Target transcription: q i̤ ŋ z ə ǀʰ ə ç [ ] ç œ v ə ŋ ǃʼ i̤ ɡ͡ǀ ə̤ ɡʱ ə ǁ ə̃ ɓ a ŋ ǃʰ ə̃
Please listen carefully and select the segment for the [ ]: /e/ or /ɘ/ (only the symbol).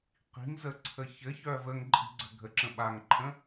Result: ɘ